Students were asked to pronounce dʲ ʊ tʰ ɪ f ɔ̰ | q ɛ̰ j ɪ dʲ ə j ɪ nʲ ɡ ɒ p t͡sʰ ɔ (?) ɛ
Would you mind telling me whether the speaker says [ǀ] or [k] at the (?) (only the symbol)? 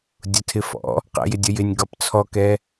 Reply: k